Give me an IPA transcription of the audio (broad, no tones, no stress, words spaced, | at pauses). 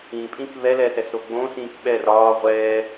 ĩpʼĩk βɛlɛsɛsɾo ɡ͡bõsĩːk ɓɛr ɒː ʁʷɛː